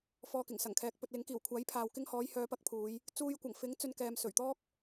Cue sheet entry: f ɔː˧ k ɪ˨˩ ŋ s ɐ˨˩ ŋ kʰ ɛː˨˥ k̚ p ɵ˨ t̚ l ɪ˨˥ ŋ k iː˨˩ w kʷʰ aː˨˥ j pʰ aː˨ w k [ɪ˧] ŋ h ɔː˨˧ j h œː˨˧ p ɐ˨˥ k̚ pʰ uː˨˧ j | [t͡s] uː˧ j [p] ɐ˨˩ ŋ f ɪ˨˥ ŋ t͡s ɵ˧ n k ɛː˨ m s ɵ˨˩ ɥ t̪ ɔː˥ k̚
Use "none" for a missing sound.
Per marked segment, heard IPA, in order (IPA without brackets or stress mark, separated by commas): ɪ˧, t͡s, kʷ